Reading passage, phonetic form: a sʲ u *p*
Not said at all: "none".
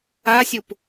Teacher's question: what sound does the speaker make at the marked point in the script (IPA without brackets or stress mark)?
p